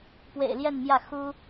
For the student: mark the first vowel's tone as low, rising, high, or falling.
low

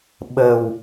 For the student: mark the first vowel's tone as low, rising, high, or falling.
low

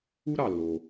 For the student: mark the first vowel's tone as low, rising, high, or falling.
high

